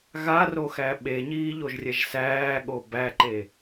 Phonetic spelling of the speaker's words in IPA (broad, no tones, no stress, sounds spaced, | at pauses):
ɣ a r o x æ ɓ e ɲ iː ʎ o ʒ rʲ ɛ ʒ s æː ɠ o b æ ǃ e